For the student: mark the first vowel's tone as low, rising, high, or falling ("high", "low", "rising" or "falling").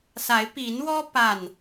rising